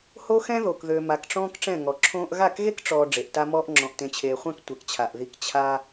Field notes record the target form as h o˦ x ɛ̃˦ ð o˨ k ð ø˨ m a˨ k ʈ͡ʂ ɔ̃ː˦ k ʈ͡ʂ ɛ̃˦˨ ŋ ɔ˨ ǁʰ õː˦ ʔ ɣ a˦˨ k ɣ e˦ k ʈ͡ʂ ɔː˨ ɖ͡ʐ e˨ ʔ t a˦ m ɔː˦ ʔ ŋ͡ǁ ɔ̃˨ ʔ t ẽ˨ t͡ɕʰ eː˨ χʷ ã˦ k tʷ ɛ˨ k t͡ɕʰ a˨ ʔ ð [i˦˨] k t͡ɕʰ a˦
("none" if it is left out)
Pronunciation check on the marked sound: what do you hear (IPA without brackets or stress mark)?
i˦˨